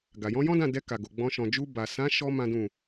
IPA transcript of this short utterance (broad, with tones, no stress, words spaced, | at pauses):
ɡa˨jɔ̃˨˦ jɔ̃˦dã˦˨dɛ˧ ka˨ɡo˨ ɡ͡bɔ̃˧ ʃɔ̃˨d͡ʒu˧ba˨ sã˨˦ʃɔ˧ mã˦dũ˦˨